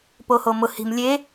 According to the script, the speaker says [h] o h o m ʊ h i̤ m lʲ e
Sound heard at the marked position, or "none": p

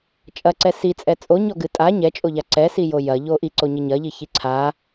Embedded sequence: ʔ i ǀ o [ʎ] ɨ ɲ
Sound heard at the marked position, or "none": ɲ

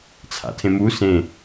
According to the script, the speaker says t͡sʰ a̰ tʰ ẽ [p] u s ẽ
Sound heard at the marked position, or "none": m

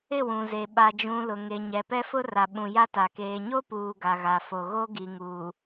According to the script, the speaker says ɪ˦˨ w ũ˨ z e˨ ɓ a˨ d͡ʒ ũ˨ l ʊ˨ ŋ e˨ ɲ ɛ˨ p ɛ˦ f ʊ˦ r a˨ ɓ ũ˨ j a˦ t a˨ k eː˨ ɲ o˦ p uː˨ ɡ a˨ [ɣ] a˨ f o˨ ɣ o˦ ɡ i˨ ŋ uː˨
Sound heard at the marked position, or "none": ɣ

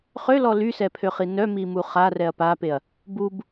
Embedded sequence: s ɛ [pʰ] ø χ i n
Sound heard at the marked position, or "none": pʰ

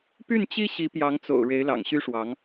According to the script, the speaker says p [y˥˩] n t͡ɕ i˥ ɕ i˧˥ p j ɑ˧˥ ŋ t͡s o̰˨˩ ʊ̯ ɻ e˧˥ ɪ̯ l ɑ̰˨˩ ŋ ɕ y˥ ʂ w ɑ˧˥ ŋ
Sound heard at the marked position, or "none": y˥˩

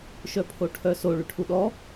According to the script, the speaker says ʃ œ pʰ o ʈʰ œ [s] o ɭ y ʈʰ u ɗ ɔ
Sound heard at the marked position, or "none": s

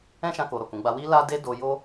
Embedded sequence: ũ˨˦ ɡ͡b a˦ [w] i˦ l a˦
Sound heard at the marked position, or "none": w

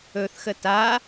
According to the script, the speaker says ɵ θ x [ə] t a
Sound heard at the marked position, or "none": ə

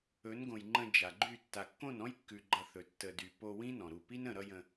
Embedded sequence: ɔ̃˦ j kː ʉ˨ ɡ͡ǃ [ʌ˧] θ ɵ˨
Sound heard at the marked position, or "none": ʌ˧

